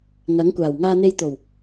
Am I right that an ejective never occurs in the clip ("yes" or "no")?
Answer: yes